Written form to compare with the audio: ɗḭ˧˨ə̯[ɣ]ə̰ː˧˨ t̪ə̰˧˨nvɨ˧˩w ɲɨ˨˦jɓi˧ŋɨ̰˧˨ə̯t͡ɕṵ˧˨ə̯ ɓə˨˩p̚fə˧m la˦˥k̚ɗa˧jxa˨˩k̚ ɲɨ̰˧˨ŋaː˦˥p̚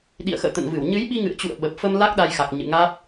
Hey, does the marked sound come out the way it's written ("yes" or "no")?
no